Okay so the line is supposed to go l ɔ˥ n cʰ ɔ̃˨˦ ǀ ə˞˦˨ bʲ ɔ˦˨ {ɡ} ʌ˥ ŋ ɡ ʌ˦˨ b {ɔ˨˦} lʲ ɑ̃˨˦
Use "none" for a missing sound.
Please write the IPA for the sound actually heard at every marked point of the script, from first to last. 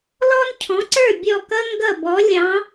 k, ɔ˨˦

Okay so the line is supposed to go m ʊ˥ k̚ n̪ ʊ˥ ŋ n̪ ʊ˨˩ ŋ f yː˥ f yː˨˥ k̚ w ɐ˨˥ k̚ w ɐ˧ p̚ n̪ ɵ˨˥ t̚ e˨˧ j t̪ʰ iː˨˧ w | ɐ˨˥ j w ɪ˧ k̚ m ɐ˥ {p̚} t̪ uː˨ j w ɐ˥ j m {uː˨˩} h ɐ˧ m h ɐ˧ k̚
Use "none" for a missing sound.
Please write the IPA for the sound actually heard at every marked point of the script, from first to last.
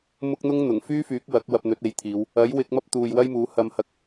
p̚, uː˨˥

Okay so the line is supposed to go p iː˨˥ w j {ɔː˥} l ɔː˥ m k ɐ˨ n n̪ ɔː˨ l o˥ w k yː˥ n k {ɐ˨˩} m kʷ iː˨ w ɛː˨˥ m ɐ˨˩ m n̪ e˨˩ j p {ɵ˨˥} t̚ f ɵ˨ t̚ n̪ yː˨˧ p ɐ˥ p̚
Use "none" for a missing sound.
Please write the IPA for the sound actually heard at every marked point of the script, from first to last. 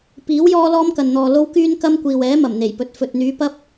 ɔː˥, ɐ˥, ɵ˨˥

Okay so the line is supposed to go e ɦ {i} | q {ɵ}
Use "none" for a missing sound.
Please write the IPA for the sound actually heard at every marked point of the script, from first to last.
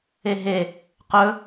e, ɵ

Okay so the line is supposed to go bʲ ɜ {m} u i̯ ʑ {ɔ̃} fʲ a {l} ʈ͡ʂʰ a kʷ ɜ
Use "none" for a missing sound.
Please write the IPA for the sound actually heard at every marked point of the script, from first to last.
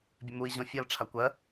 m, ɔ̃, l

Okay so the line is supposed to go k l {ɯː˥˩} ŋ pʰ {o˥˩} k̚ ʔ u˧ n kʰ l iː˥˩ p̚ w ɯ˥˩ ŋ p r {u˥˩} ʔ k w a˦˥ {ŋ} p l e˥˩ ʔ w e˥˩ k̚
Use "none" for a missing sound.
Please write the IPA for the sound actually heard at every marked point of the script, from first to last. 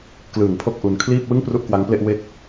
ɯː˨˩, o˥˩, u˥˩, ŋ

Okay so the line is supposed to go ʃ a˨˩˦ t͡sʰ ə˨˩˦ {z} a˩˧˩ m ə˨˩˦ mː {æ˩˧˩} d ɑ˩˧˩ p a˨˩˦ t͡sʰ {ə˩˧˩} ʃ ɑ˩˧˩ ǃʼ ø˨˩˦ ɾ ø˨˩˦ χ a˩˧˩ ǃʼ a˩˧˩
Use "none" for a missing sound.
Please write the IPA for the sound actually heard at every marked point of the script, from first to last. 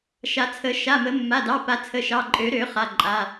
ʃ, a˩˧˩, ə˩˧˩

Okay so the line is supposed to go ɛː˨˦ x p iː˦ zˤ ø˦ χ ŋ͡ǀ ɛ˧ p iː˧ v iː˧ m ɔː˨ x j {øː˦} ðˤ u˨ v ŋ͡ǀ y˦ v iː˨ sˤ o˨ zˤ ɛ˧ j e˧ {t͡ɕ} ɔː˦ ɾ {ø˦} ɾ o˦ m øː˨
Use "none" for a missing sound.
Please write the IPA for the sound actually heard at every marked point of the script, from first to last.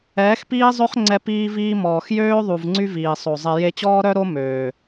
øː˦, t͡ɕ, œ˦

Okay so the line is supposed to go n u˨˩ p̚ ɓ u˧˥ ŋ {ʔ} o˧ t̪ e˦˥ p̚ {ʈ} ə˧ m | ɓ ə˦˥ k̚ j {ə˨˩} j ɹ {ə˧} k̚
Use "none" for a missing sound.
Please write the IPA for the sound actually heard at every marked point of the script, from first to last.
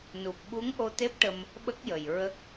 ʔ, ʈ, ə˨˩, ə˦˥

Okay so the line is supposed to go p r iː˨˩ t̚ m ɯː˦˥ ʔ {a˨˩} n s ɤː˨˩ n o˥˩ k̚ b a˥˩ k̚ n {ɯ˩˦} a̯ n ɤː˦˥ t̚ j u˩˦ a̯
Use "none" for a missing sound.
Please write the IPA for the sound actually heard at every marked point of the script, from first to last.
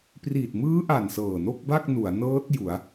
a˨˩, u˩˦

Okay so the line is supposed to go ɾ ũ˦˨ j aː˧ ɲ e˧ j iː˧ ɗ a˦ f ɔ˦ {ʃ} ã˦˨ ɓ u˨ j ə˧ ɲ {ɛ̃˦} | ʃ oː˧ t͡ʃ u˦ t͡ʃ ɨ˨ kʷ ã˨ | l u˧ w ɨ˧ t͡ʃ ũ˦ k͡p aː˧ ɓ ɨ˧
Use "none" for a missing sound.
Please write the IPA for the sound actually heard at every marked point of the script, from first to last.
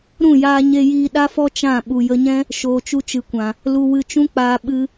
t͡ʃ, ɛ̃˦

